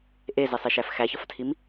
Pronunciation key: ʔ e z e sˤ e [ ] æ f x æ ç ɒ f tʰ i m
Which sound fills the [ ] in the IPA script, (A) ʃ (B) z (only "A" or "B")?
A